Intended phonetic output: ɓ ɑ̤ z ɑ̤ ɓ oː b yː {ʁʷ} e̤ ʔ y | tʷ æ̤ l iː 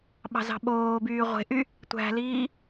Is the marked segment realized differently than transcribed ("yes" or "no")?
no